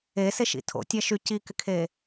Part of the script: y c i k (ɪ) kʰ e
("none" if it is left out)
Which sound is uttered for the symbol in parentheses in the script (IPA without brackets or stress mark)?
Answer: ɪ